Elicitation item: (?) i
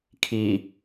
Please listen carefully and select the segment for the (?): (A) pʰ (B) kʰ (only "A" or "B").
B